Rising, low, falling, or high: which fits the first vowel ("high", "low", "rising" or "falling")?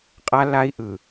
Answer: high